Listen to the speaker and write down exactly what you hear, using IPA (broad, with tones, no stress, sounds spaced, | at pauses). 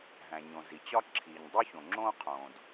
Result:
ɦ æ̃˩ ɲ õ˩ z i˩ t͡ɕ ɒ˥ ǁʰ iː˩ ɲ dˤ u˥ ç õ˩ ŋ͡ǁ õː˥ qʰ õː˩ d